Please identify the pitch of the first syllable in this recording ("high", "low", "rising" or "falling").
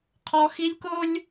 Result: high